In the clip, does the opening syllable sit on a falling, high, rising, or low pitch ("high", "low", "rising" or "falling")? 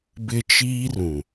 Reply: high